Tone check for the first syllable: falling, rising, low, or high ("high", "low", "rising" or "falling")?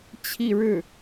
falling